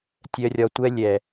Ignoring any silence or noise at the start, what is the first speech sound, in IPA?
tʲ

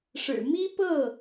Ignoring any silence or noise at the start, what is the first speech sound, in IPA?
ʂ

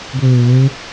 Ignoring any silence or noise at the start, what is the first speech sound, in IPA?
ɡʷ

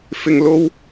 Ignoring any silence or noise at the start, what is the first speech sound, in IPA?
f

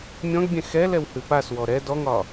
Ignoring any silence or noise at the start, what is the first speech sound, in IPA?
mʲ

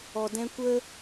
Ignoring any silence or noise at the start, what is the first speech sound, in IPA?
ɔ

